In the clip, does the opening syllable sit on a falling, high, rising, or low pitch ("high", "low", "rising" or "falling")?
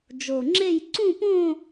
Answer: low